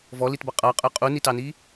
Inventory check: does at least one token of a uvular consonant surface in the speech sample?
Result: yes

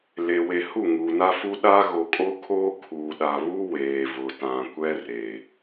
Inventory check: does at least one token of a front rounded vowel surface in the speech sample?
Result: no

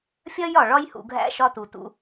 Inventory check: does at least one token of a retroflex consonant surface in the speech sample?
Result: yes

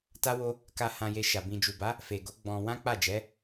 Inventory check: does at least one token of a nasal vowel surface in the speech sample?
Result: yes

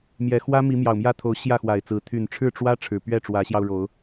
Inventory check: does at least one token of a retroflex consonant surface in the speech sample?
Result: yes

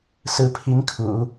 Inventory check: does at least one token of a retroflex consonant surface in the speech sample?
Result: no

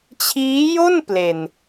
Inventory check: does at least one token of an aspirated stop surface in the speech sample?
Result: yes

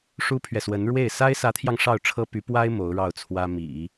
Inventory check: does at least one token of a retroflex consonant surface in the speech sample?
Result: yes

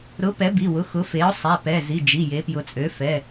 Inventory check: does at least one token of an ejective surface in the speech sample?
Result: yes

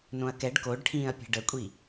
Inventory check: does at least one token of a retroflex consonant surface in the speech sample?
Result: yes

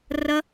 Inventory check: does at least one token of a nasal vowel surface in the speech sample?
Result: no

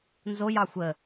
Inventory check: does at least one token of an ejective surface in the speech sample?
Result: no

